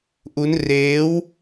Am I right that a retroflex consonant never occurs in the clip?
yes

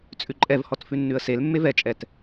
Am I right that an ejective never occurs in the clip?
no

